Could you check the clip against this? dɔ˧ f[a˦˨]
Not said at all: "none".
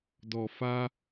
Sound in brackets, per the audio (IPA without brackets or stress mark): a˦